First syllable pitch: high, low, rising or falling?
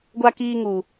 high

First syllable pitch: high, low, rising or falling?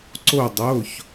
falling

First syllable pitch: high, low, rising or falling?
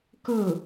falling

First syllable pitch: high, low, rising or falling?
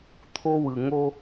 high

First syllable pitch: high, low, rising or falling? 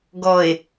low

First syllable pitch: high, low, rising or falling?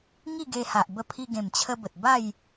falling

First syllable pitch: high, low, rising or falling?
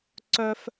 high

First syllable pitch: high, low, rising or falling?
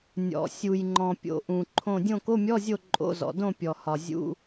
low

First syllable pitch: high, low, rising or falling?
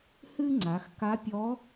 high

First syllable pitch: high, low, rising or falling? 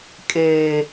low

